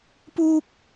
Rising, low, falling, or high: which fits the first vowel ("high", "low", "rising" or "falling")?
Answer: high